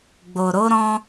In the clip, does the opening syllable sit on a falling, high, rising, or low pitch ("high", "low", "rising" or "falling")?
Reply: low